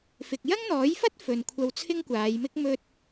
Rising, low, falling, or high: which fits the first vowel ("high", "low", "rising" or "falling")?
low